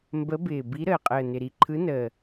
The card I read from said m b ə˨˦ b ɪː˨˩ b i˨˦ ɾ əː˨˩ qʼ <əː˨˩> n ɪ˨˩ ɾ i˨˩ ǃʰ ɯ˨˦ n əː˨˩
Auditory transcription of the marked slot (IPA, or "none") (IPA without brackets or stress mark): əː˨˩